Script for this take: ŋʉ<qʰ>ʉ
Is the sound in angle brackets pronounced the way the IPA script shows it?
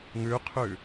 yes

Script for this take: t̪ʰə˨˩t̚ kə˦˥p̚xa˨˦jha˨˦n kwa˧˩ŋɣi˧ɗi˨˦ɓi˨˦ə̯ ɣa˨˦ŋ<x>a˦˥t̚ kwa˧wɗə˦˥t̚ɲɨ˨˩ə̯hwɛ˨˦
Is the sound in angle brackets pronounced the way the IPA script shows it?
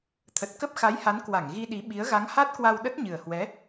no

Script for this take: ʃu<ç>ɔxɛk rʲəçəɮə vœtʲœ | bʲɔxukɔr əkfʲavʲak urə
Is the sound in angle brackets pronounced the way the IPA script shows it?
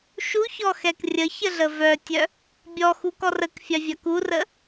yes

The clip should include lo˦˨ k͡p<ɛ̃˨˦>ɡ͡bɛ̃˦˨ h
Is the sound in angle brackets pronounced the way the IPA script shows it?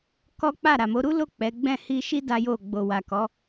no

